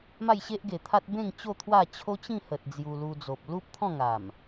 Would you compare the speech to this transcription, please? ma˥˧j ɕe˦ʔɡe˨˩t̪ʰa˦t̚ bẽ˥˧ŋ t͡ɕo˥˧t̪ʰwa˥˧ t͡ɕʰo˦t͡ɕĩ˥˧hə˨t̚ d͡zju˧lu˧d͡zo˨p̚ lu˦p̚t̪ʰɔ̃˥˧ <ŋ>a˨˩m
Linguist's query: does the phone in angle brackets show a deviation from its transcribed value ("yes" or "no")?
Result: no